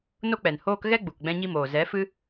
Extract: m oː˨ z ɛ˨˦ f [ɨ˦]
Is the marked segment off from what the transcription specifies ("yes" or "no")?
no